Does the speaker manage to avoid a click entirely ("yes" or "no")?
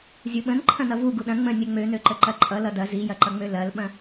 no